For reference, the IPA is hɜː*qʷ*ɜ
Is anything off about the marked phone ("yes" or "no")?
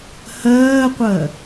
no